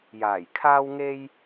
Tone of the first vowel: low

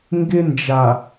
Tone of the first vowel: high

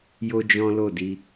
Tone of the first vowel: high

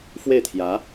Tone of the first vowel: falling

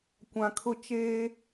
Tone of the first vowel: low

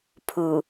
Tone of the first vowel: low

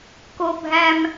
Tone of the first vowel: high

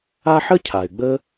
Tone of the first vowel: high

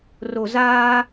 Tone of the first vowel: low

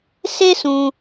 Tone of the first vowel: high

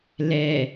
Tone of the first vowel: low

